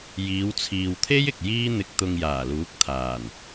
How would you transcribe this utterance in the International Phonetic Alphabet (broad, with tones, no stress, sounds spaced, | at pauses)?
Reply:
j iː˨˧ w t͡sʰ iː˨ w t̪ʰ e˥ j ɪ˨ k̚ j iː˥ n̪ ɪ˧ k̚ t̪ ʊ˧ ŋ j aː˨˩ l uː˨˥ k̚ t̪ʰ aː˨˩ n